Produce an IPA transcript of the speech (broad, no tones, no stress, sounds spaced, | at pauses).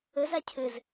ə z a cʰ ɘ z